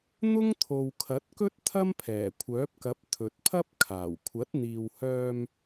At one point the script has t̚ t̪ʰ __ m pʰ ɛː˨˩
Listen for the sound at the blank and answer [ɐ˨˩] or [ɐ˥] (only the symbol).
ɐ˥